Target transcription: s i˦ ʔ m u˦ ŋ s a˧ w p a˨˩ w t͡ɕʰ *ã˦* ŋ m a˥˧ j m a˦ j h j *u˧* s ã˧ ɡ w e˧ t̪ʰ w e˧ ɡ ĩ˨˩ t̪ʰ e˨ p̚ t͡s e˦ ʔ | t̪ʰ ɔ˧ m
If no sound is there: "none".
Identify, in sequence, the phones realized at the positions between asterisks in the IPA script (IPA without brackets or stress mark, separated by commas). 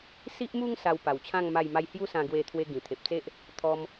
ã˥˧, u˦